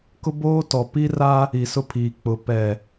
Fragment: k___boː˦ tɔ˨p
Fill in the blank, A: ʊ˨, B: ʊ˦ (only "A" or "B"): B